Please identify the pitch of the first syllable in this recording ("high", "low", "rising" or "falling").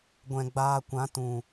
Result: low